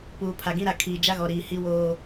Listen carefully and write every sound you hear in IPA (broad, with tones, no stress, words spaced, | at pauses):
puː˨pʰa˨ɡĩ˦ɾa˨ kʰiː˨ d͡ʒa˦ɣɔ˨ ɾiː˨hi˦ woː˦